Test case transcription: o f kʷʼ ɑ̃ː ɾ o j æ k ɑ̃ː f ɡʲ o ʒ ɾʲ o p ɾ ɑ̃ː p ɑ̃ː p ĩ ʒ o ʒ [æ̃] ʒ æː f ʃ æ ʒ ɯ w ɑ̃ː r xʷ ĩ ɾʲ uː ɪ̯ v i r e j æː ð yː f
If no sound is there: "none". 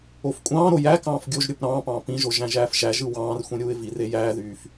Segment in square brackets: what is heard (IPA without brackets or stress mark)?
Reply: æ̃